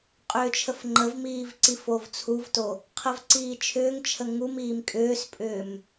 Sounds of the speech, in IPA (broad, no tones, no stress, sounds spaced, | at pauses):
qʼ ʏː t͡ʃʰ ə f ŋ͡ǃ ə v m iː v ǀ i f o v t͡sʰ u v t o | qʰ ə v ǀ iː t͡ʃʰ ʏː ŋ t͡ʃʰ ə ŋ u m iː m kʼ ʏː s pʼ ʏː m